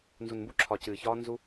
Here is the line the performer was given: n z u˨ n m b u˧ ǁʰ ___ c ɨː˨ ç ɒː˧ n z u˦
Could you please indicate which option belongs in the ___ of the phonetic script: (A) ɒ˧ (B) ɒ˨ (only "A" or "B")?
B